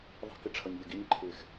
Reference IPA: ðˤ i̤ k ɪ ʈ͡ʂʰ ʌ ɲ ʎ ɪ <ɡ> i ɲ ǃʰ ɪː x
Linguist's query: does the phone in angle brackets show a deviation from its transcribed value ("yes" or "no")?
no